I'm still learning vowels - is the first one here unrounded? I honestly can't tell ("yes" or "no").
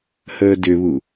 yes